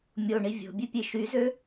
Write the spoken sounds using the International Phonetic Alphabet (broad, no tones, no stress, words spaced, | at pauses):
mʲoɳi vʲo̤bʲepʲe ʃyzø